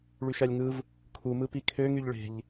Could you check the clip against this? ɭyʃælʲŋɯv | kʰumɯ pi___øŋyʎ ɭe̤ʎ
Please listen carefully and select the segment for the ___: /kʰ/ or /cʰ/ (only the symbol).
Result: kʰ